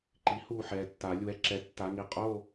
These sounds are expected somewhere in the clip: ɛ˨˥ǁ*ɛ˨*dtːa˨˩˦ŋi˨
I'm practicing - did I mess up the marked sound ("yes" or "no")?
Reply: yes